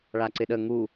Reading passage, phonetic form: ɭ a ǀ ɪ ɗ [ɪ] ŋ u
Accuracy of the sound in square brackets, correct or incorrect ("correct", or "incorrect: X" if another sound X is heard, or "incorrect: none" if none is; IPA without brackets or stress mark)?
incorrect: ə